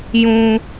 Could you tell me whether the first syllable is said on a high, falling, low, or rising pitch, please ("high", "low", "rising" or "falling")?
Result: low